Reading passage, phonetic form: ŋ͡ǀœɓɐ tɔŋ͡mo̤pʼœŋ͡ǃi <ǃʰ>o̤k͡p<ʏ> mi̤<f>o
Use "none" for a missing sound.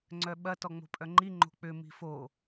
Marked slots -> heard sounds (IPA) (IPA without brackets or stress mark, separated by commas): ŋ͡ǃ, ʏ, f